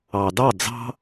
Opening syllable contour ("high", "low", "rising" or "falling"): low